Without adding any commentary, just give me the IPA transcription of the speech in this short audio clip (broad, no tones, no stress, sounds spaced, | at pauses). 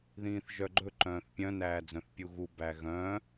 ð ĩː θ ʒ œ ɡ͡ǃ ɵ ǃ œ̃ː θ pʲ œ̃ n æː d͡z œ̃ θ pʲ u ɣ u b æ ɣ œ̃